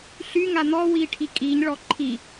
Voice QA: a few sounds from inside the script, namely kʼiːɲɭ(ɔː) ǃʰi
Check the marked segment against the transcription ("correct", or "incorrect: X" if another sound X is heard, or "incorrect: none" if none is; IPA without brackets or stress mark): incorrect: ɔ